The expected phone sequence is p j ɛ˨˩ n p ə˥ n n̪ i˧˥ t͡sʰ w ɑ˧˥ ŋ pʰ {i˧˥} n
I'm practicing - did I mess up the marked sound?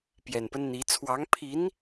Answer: no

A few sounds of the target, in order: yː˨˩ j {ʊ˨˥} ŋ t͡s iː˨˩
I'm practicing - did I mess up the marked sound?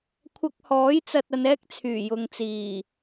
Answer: yes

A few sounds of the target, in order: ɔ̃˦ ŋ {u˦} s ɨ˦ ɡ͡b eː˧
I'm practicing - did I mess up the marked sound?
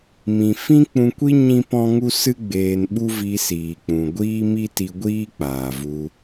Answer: no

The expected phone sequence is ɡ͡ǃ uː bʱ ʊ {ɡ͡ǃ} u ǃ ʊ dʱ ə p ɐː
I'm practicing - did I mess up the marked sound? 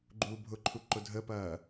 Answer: yes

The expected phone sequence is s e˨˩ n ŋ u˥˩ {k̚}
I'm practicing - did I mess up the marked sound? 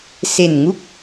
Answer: no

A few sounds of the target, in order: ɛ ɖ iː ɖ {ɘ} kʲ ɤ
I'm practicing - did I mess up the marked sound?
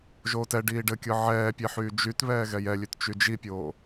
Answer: no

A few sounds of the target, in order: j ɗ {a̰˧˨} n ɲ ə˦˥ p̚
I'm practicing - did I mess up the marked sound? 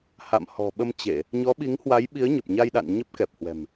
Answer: no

